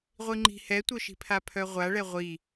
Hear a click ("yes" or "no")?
yes